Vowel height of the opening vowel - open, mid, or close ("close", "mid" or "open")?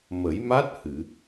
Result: mid